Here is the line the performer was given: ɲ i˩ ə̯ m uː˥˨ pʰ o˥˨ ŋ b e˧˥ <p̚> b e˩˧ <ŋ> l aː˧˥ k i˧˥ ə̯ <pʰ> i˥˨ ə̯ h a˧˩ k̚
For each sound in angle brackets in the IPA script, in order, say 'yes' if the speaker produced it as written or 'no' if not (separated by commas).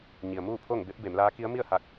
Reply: yes, no, no